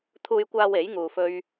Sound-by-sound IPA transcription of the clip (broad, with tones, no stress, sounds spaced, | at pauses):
t̪ʰ uː˧ j kʷ aː˧ w e˨˥ j ŋ uː˧ f ɵ˥ ɥ